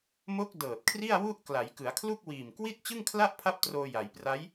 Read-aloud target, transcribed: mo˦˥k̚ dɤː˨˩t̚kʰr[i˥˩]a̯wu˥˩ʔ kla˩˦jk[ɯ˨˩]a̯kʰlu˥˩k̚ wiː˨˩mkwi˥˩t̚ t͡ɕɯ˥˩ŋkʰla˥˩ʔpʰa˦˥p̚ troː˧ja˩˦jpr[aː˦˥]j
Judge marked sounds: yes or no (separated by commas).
yes, no, no